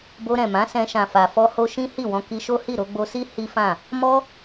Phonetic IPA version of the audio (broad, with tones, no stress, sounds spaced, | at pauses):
b o˧ ɾ ɛ̃˨ m ã˨˦ s ɛ̃˧ ʃ ã˨ f a˨ f ɔ˧ h o˧ ʃ ĩ˦ h i˦˨ w ɔ̃˧ k i˧ ʃ o˦ h i˦˨ ɾ o˧ ɡ͡b o˧ s i˦ h i˦ f ã˦˨ | m ɔ˦